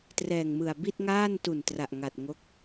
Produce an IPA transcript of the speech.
t r ɛː˨˩ ŋ m ɯ˨˩ a̯ b i˥˩ t̚ ŋ aː˥˩ n t u˨˩ n t r a˨˩ ʔ ŋ a˨˩ t̚ ŋ o˦˥ k̚

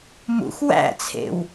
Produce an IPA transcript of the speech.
m ṵ x w æ̰ t͡sʰ ḛ w

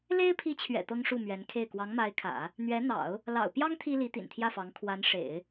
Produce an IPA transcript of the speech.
l e˥ ɪ̯ pʰ i˧˥ t͡ɕʰ ɥ ɛ̰˨˩ t̪ ɤ˥ ŋ ʂ u˥˩ m ɥ ɛ˧˥ n kʰ e˥˩ ɪ̯ k w ɑ˧˥ ŋ m a˧˥ ɪ̯ kʰ ä̰˨˩˦ | n̪ ɥ ɛ˧˥ n̪ ɑ̰˨˩˦ ʊ̯ | l ɑ̰˨˩ ʊ̯ p j ɑ˥ ŋ t̪ʰ i˥ l i˧˥ t̪ ḭ˨˩ n t̪ʰ j ä˥˩ f ɑ˧˥ ŋ kʰ w a˧˥ n ʂ ḛ˨˩˦ ɪ̯

